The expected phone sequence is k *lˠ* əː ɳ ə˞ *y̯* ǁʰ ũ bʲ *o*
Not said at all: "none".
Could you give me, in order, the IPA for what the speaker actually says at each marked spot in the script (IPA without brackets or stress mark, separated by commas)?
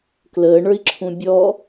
l, i̯, ɔ